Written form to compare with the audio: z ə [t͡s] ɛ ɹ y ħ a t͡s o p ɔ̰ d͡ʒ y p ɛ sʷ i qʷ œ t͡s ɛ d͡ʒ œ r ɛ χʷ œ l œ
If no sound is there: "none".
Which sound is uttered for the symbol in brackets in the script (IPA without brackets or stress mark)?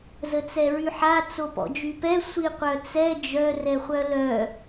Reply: t͡s